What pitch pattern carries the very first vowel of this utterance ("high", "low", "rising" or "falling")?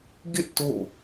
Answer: falling